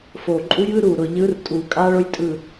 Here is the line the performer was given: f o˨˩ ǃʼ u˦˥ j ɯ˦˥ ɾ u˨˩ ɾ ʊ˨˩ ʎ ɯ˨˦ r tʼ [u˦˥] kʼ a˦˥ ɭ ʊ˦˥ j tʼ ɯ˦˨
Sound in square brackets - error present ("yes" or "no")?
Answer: yes